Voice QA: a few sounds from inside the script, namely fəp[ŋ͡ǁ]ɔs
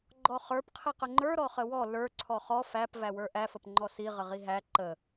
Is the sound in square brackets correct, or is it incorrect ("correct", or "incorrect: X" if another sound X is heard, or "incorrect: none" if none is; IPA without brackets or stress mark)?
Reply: incorrect: ŋ͡ǃ